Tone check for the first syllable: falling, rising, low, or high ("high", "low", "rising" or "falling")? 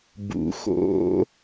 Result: rising